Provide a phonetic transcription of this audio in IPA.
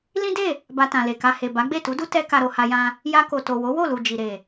l ĩ˦ d e˦˨ | b a˧ t ã˨ l e˨ k a˧ h e˨ b a˨˦ ɡ͡b e˦˨ t u˨˦ d u˦ t ɛ˦ k a˧ ɾ o˧ h a˧ j ã˧ | j a˧ k o˨ t o˨ w o˨˦ w o˦˨ l u˨ d͡ʒ i˨ ɾ e˨

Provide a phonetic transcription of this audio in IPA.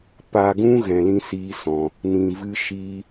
p a˧ ɡ ũ˦ ɣ ɛ̃˧ l ĩ˦ s iː˦ s ɔ̃˧ | n ĩ˨ v ɨ˦ ʃ i˦

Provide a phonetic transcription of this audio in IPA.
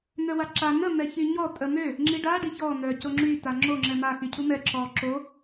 n̪ œ w a ǁ a n ə m ɛ ç y ɲ ɔ tʼ ə m ø | ŋ͡ǁ i ɖ a ɖ i ç ɔ n̪ œ c o ŋ͡ǁ y t a ŋ͡ǁ o ŋ͡ǁ ɛ m a x y cʰ u m ɛ ǁ ɔ ǁ o

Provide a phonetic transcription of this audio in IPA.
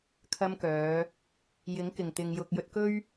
kʰ ɐ˧ m k œː˨˧ | j ɪ˨˥ ŋ k ɪ˨˩ ŋ t̪ ɪ˨ ŋ j ʊ˨ k̚ j ɵ˧ t̚ k ɵ˥ ɥ

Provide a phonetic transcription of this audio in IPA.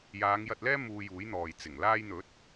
j aː˨˧ ŋ j ɐ˧ t̚ l ɛː˥ m uː˧ j uː˨˥ j n̪ ɔː˨ j t͡s ɪ˨˩ ŋ l aː˧ j n̪ ɵ˨˥ t̚

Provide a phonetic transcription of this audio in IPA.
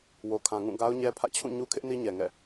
w o˨ kʰ ã˨ ŋ ũ˦˨ ɡ a˦ ʊ̯ ɲ ɛ˦ pʰ ä̰˦˨ t͡ɕʰ ũ˦˨ ɲ u˦ kʰ ɪ˦ ʔ n i˦ ɲ ɛ˨ ŋ ɛ̰˦˨

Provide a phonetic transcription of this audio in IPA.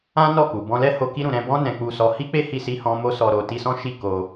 ã˦ n ɔ˦˨ k u˨ b ɔ̃˧ l ɛ˦ h o˧ k i˧ ɾ ũ˨ ɾ ɛ̃˧ b ɔ̃˦ n ɛ̃˧ k͡p u˧ s ɔ˧ h i˦ k͡p e˦ h i˧ s i˧ h ɔ̃˦ m o˦ s ɔ˧ ɾ o˨ t i˧ s ɔ̃˦ ʃ i˦˨ k o˧

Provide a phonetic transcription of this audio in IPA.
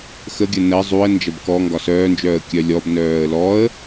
x ə ɡʲ ə n ə zˤ u ə̯ n d͡ʒ ɐ b k ɔ ŋ ɡ ɒ s œː n d͡ʒ œː ə̯ kʲ œ lʲ ɔ b n œː ə̯ l ɔ ə̯

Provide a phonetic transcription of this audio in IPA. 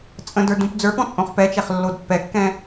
t͡sʼ ə̃ d ə˞ d ũ p d͡z ə˞ p ɔ̃ t͡sʼ õ χ p ɛ t͡ʃ ɛ χ lː o d pː ɛ kː ɛ̃

